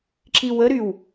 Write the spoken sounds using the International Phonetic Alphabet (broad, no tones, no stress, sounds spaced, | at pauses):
ǁ i w ə ɾ y w